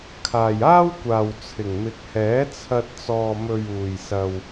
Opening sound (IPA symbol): kʰ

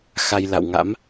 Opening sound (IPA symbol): x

